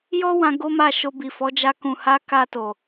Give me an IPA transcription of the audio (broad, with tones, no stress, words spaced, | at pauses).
jɔ˦wã˧ ɡo˦ma˦˨ʃo˧ bi˨fɔ˨˦d͡ʒa˧ kũ˨ha˨˦ ka˧to˨